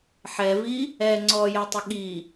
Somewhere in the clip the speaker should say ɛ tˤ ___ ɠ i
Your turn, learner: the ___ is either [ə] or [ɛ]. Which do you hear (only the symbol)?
ə